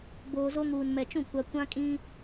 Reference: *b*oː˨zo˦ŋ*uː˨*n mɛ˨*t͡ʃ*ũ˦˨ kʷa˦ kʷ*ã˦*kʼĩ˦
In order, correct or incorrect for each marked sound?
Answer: correct, correct, correct, correct

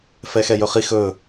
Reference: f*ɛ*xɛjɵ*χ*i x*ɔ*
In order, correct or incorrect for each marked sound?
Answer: correct, correct, incorrect: ɵ

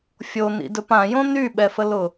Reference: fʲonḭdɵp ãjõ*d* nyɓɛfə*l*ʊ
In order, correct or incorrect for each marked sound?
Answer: incorrect: none, correct

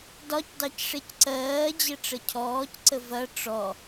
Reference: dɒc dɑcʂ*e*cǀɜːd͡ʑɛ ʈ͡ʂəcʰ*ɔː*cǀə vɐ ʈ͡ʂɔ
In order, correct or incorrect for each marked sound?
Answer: correct, correct

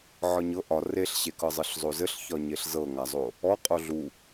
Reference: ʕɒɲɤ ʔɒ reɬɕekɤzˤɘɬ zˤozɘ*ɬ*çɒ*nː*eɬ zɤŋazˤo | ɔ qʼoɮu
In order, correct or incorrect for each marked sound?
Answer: correct, incorrect: ɲ

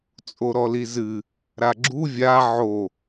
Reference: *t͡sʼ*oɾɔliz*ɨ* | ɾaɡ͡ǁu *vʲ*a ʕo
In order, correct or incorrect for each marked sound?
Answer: correct, correct, correct

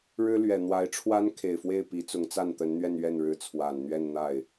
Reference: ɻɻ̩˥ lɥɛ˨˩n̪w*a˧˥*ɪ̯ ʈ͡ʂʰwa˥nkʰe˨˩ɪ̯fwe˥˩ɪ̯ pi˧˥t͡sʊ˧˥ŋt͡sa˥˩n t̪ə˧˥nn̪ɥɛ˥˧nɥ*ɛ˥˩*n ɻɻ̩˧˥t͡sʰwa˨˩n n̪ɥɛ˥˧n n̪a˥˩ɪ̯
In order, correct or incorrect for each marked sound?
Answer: correct, correct

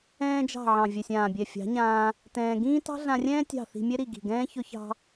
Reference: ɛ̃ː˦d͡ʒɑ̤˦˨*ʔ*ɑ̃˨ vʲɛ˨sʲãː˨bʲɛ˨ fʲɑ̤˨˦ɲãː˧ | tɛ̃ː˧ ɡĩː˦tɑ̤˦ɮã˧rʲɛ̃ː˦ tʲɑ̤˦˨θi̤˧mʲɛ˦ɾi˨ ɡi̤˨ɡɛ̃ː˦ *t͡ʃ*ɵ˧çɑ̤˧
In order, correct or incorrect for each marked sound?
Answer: incorrect: ʕ, incorrect: ç

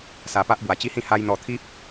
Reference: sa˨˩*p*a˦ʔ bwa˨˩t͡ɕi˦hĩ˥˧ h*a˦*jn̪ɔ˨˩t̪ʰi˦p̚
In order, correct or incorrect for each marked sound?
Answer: correct, incorrect: a˧

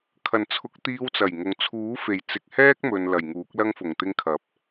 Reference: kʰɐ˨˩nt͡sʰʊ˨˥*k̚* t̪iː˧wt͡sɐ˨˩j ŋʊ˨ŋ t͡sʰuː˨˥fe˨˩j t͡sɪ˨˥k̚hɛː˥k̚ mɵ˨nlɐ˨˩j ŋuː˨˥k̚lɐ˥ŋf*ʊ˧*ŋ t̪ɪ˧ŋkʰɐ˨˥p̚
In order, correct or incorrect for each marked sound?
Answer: correct, incorrect: ʊ˨˩

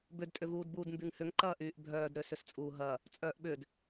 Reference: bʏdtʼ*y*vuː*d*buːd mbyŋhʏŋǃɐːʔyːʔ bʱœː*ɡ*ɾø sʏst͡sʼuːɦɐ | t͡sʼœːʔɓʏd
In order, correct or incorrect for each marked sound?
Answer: incorrect: ʏ, correct, incorrect: d

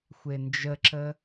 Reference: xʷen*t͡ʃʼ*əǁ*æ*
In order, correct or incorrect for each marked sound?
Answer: incorrect: d͡ʒ, incorrect: ə

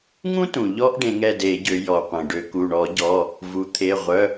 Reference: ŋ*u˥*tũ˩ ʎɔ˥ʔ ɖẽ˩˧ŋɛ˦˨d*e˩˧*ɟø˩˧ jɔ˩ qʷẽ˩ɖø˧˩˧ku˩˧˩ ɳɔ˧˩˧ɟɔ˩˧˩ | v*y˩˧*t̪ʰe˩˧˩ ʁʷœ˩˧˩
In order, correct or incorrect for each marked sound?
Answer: incorrect: ũ˥, incorrect: e˧˩˧, incorrect: u˩˧

